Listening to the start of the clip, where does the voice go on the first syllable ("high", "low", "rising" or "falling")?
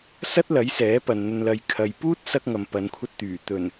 high